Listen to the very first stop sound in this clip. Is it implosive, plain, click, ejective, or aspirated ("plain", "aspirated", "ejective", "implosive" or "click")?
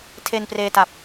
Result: aspirated